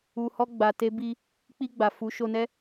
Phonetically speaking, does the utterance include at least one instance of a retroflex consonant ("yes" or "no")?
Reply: no